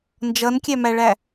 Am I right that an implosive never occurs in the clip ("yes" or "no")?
yes